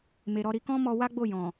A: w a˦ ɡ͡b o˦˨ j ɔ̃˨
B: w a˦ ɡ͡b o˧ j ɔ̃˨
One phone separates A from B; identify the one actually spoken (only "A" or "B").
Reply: A